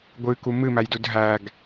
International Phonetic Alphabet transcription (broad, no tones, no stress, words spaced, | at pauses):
ɡʷɨku mɨmæjdud ɦæɡ